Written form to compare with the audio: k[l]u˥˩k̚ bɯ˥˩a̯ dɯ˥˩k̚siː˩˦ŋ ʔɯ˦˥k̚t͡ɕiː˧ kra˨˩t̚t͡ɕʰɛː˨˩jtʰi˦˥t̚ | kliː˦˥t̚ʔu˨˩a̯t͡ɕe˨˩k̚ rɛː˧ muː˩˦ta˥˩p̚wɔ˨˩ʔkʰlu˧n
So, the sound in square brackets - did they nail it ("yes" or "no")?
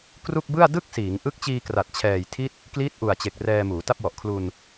no